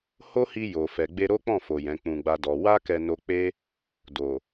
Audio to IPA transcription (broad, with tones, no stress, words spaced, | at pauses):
ho˦hi˧ jo˨fɛ˨ ɡ͡be˧ɾo˦k͡pɔ̃˦˨fo˨ jɛ̃˨˦k͡pũ˧ɡ͡ba˦dɔ˧ wa˦kɛ˧no˧ k͡pe˦ | do˨